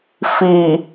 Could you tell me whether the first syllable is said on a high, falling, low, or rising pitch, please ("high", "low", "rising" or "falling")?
low